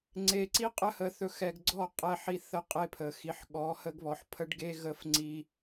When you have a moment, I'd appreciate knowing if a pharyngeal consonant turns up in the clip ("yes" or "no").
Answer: yes